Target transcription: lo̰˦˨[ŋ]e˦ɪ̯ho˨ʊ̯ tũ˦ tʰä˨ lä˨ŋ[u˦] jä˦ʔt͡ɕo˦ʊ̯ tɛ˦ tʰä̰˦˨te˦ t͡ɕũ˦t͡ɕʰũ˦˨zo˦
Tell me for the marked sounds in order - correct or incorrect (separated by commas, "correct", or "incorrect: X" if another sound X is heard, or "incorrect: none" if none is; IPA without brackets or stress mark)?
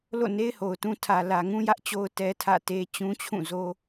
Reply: incorrect: n, incorrect: ũ˦